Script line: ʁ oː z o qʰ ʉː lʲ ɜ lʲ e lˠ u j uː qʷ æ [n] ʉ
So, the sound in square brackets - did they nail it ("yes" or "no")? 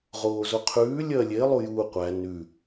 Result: yes